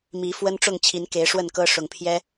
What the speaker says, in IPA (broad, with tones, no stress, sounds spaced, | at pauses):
m i˨˦ f w ə˦ n ʈ͡ʂ ʊ˥˨ ŋ t͡ɕʰ i˨˦ n k e˨˦ ɪ̯ ʂ w ə˥˨ n k ɤ˦ ʂ ʊ˨˩ ŋ pʰ j ɛ˦